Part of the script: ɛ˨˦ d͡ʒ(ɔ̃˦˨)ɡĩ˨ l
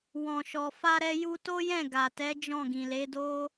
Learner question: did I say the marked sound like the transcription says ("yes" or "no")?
yes